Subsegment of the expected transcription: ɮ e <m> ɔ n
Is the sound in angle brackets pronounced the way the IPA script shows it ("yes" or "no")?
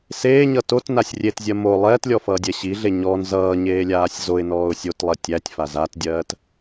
no